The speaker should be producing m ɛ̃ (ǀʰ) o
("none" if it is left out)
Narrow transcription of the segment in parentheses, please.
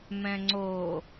ŋ͡ǀ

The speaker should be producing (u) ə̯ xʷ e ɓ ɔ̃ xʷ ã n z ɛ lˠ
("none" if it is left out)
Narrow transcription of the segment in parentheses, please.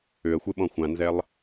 ʏ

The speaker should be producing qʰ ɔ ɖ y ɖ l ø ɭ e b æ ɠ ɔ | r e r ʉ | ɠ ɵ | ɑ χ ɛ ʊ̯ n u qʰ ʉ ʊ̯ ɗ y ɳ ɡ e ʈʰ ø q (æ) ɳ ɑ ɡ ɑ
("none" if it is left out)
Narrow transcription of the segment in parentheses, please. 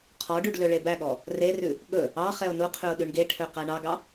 æ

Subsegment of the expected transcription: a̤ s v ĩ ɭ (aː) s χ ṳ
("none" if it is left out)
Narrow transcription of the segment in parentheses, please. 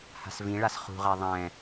a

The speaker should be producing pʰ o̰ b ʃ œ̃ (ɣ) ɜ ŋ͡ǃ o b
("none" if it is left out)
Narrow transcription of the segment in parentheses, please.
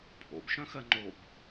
x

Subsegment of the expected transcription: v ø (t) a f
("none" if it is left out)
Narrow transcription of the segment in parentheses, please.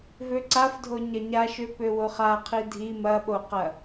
ǀ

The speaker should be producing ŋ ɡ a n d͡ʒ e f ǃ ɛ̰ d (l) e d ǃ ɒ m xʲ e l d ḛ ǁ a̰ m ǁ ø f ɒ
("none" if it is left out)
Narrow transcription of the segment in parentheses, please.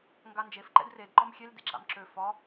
r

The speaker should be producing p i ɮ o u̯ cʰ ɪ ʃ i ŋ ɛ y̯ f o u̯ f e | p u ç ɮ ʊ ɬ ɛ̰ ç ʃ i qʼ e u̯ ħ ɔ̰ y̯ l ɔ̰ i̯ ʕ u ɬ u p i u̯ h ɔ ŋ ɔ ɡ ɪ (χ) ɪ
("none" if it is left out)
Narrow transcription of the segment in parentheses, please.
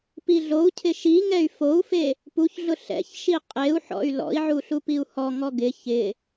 ç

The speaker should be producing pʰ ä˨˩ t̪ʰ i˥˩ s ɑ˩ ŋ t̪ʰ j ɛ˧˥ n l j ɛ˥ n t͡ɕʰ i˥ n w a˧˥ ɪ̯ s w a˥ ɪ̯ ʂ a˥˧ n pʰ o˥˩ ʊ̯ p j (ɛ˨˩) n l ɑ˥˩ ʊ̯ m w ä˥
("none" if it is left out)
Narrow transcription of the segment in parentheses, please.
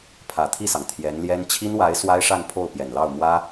ɛ˨˩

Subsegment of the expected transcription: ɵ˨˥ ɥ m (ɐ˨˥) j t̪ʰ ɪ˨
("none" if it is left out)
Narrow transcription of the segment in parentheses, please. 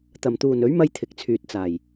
ɐ˥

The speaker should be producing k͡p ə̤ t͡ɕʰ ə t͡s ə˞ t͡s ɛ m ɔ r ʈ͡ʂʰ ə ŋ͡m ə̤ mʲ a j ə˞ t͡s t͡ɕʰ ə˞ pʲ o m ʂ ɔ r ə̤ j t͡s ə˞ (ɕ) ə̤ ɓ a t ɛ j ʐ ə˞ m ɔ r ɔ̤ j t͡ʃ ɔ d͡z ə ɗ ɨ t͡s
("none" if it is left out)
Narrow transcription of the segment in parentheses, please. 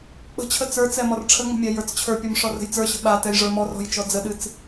ɕ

